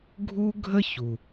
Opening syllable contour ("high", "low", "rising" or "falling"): high